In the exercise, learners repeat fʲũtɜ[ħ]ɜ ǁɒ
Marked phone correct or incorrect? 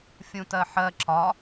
correct